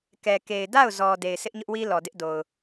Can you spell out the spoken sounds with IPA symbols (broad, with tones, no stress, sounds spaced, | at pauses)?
k ɛ˨ k e˨ ɪ̯ d a˦˨ ʊ̯ z ɔ˨ d e˨ ɪ̯ s ɪ˦ ʔ ɲ ʊ˦ ʔ w i˦ l ɔ˨ d ɪ˦ ʔ d o˨ ʊ̯